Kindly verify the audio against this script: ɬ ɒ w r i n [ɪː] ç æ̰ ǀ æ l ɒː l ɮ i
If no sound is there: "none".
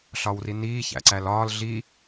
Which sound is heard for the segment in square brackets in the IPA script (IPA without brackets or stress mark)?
iː